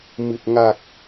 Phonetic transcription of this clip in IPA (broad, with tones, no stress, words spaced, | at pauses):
mɨ˨˩t̚ ŋa˨˩k̚